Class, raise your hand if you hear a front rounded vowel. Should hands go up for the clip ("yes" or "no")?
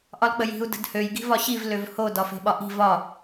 yes